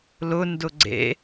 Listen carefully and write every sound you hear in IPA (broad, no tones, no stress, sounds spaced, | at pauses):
l ʊ n d ʊ ɡ͡ǀ ḛ